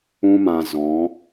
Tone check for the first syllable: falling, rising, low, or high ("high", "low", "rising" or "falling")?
high